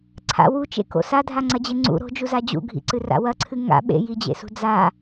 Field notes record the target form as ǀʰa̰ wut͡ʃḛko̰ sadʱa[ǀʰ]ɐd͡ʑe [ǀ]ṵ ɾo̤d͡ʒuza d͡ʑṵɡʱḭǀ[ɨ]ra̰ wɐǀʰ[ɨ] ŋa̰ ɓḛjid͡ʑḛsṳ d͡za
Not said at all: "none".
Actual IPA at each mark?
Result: ŋ͡ǀ, ŋ͡ǀ, ɨ, ɨ

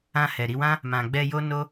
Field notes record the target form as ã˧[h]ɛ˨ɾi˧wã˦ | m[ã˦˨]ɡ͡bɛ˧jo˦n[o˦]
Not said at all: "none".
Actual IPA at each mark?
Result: h, ã˨, o˦

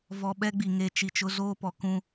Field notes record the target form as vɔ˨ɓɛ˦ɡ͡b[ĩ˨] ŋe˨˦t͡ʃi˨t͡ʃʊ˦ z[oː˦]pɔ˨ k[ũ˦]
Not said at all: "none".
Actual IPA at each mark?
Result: i˨, oː˦, ũ˦

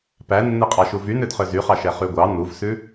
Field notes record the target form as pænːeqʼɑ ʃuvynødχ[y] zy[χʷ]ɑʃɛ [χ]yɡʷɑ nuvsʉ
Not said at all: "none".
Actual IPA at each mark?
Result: ø, χ, χ

